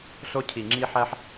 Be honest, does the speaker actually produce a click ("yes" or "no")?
yes